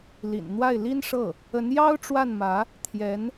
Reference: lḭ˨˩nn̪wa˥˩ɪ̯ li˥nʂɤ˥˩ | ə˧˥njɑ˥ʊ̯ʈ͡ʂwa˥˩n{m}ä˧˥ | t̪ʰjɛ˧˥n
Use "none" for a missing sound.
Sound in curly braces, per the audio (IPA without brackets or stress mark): m